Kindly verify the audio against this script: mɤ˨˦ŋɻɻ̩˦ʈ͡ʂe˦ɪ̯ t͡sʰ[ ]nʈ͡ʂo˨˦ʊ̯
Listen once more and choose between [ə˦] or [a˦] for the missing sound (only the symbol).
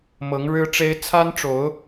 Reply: a˦